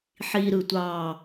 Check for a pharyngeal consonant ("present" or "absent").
present